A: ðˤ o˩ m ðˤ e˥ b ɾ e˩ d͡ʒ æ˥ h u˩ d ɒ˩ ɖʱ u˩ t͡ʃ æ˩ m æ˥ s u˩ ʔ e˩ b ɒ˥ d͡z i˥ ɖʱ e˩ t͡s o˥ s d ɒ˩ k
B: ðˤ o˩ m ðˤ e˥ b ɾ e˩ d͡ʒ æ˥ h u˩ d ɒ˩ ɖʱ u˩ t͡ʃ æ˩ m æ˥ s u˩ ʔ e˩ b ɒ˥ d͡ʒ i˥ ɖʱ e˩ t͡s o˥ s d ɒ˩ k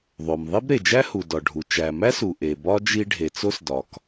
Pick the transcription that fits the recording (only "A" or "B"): B